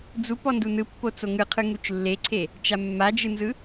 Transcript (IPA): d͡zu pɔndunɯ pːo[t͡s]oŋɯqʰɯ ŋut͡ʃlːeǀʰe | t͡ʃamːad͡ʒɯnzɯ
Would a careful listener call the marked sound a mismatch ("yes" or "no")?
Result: no